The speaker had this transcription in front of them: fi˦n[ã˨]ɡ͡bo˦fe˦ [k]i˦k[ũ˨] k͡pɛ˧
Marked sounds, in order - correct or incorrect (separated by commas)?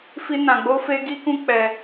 incorrect, incorrect, incorrect